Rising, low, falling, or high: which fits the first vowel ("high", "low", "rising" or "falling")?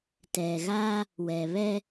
low